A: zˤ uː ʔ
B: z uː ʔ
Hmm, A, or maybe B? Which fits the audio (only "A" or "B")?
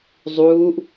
A